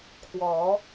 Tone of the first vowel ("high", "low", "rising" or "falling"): rising